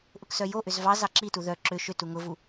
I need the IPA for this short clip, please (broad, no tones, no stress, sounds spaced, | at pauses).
ʔ ʊ k s œ j o ʔ ʏ z v ɑ z ɑ ǁ i t u ð œ ǁ ʏ ʃ ʏ t u ŋ ʊ v u